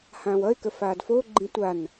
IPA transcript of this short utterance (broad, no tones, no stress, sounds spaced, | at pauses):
h ãː w ʌ ɪ̯ k ə f aː d f o ɡ͡ǃ ĩ tʷ a n